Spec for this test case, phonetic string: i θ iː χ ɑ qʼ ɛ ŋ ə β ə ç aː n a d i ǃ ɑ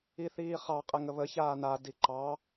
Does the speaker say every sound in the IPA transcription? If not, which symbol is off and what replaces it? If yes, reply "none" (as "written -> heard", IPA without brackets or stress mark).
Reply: none